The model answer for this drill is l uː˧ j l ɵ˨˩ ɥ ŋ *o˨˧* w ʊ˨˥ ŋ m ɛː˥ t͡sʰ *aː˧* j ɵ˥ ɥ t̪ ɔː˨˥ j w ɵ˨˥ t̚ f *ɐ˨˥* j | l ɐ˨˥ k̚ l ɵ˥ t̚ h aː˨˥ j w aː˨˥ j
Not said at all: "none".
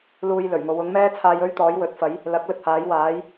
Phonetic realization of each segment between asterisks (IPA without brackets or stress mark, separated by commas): o˨˧, aː˧, ɐ˨˥